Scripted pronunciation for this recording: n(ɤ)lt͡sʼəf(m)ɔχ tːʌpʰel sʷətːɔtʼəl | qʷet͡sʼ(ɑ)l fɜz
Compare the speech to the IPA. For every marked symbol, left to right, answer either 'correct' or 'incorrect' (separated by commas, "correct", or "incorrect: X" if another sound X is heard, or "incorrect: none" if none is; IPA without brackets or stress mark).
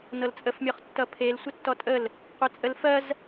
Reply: correct, incorrect: mʲ, incorrect: ə